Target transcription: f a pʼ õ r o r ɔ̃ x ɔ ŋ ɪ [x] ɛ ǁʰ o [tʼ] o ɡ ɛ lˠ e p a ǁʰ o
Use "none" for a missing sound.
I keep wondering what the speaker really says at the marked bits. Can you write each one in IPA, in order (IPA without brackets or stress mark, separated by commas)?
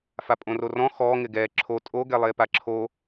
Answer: ɡ, tʼ